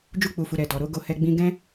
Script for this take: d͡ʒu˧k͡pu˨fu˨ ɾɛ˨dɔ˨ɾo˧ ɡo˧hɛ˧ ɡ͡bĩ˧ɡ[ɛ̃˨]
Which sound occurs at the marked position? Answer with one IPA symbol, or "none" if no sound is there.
ɛ̃˦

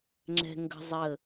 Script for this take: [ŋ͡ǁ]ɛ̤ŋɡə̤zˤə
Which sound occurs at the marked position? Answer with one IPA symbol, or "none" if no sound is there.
ŋ͡ǁ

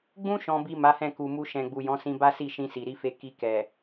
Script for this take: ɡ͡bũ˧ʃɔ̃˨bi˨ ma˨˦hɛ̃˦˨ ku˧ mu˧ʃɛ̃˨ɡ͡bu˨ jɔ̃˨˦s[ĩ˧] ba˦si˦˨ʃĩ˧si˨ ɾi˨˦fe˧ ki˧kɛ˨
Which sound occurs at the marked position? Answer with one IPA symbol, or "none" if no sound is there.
ĩ˧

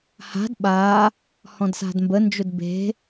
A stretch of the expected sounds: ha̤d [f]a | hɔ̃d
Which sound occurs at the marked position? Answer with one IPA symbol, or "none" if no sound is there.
ɓ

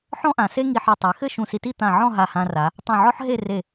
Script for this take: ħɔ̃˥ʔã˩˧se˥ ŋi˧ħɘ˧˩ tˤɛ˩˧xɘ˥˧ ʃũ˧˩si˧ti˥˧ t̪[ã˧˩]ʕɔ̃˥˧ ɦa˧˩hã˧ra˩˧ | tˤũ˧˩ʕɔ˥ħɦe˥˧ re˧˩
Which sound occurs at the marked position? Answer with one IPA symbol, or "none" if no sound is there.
ã˧˩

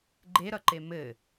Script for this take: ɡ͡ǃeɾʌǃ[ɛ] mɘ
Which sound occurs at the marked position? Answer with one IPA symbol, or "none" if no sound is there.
e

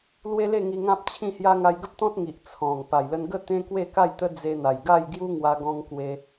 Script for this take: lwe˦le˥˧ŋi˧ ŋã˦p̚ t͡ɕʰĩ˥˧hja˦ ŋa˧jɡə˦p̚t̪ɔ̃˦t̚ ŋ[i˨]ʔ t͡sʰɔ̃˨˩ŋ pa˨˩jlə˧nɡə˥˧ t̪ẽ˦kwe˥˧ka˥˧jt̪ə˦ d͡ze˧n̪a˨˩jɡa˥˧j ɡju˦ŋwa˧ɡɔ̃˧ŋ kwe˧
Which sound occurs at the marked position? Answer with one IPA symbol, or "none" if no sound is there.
i˨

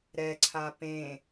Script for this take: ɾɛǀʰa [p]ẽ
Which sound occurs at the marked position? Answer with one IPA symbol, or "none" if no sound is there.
p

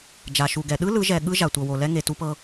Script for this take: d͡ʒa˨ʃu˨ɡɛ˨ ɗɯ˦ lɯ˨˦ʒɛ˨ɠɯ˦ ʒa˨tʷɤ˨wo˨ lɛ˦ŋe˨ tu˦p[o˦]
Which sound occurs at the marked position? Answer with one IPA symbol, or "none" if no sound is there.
ɤ˦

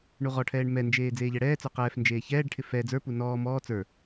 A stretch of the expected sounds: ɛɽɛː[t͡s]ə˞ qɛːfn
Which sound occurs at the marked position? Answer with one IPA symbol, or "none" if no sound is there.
t͡s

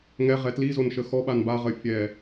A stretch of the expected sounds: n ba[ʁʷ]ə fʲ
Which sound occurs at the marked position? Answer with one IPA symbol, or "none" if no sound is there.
ʁ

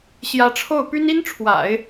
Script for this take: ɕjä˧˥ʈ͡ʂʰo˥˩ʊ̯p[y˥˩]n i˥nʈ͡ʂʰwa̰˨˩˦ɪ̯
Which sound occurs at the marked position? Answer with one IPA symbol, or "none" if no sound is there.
y˥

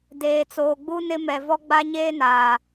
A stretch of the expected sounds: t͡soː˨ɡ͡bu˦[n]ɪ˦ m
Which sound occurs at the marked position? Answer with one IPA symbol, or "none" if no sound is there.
n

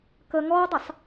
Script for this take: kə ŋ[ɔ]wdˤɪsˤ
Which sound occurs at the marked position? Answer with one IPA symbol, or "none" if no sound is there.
ɔ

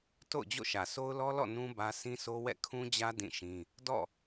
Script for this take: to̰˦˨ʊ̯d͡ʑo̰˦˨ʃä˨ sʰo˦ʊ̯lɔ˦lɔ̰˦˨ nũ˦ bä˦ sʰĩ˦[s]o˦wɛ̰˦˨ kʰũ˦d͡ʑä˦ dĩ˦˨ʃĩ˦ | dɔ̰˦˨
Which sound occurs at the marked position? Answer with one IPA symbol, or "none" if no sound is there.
s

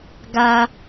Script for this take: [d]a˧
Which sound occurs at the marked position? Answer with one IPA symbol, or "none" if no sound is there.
ɡ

